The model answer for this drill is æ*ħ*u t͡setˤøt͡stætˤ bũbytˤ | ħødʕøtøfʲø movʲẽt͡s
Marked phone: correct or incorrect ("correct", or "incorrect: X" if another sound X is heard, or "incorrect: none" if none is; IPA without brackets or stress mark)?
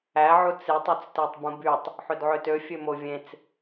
incorrect: ʕ